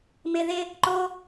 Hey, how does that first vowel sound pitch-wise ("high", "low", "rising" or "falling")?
low